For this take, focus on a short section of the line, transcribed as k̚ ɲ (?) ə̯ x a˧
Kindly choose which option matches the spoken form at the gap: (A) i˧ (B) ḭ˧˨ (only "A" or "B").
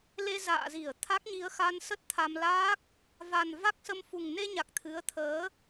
A